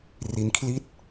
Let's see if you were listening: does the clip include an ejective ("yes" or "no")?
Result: no